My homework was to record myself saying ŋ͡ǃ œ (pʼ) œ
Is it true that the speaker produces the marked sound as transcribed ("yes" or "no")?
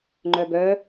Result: no